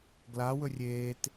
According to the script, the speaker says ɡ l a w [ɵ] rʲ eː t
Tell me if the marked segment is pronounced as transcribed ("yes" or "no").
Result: yes